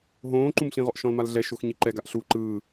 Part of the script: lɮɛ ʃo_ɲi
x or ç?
x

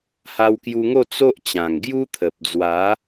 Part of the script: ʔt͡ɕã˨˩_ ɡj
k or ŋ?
ŋ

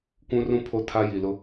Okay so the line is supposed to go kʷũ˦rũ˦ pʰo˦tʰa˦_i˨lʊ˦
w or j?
j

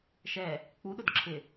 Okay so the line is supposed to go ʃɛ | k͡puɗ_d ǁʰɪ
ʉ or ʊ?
ʊ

